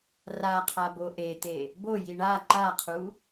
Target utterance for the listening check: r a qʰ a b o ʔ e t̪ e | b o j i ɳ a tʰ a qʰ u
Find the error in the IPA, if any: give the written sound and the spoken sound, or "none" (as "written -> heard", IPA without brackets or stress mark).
tʰ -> ǃ